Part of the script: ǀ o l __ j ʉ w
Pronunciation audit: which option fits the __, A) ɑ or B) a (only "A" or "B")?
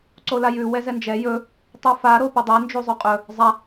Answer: B